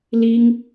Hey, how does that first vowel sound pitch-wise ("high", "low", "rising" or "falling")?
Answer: high